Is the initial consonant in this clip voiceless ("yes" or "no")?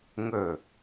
no